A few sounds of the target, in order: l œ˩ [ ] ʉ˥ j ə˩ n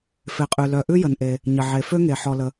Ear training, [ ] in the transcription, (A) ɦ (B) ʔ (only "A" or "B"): B